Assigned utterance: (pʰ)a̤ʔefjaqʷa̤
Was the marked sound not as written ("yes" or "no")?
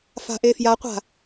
yes